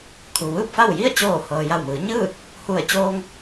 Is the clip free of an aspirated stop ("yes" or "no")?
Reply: no